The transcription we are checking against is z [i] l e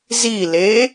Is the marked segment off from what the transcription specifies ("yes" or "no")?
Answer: no